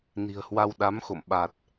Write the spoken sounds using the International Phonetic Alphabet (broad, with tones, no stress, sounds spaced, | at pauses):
n i̤˨˩ ə̯ h w a˧ w ɗ a˨˦ m x o̰˧˨ m ɓ a˨˩ t̚